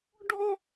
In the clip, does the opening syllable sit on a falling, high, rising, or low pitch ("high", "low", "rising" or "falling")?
high